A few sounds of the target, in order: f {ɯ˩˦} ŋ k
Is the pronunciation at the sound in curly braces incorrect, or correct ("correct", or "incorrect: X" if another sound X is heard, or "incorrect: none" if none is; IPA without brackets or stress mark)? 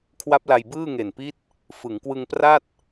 correct